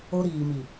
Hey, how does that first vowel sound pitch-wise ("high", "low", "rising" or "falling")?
high